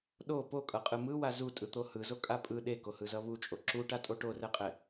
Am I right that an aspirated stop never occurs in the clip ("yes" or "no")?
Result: yes